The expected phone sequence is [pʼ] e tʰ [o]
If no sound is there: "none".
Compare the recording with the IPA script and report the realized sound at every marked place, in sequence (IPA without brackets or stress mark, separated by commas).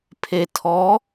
pʰ, ɔ